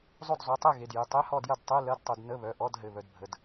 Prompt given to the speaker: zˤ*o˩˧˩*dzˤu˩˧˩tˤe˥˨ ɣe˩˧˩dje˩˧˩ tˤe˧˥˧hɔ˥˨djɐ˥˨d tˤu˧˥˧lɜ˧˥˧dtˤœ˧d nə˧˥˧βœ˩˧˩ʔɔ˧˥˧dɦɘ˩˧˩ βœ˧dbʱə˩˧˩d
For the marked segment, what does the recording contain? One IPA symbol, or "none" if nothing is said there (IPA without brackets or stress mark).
o˥˨